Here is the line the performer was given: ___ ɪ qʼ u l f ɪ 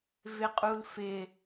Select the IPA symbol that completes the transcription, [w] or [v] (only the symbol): v